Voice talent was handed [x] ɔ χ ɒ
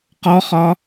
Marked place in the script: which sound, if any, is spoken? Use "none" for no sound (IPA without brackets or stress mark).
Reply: q